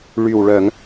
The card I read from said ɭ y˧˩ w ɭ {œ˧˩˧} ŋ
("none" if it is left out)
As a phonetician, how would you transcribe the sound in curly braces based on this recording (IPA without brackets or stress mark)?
œ˧˩˧